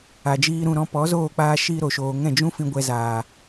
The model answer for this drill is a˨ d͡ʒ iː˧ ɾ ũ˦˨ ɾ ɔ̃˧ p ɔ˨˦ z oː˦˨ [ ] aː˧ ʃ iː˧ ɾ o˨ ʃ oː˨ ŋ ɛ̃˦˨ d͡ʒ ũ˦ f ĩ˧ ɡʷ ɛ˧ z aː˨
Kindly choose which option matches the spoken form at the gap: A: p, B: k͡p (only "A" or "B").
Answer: B